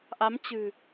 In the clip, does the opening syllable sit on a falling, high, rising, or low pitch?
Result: rising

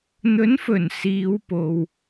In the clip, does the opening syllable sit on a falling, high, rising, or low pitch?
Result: rising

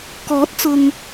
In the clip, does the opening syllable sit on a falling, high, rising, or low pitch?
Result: rising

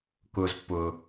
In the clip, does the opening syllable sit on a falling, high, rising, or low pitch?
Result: low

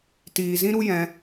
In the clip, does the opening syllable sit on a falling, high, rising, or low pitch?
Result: low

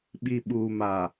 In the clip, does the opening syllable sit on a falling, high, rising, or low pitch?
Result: low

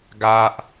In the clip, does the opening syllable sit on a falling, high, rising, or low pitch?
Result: high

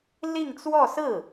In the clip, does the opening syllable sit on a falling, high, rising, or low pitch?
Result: falling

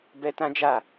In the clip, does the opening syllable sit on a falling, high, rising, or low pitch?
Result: high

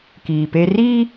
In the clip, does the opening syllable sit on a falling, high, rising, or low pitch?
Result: low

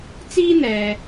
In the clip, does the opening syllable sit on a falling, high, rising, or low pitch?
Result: high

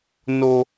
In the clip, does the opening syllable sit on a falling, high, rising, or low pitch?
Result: high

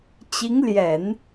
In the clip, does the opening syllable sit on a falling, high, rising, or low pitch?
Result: rising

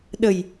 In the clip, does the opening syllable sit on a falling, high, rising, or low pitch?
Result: low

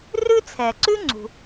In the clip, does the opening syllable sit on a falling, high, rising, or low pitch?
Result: high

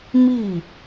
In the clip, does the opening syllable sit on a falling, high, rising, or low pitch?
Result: falling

